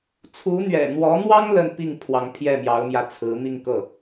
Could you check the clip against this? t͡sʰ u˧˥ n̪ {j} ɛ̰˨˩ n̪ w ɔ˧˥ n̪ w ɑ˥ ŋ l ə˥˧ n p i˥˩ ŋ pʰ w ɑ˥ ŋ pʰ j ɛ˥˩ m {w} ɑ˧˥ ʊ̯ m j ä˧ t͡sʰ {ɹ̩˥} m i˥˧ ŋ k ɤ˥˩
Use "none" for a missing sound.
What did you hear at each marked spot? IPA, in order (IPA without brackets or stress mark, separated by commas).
ɥ, j, ɹ̩˧˥